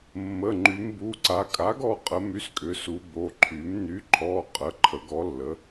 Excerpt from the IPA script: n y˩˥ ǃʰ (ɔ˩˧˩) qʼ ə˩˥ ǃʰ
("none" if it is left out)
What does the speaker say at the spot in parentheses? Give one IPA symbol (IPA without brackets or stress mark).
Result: ɔ˩˧˩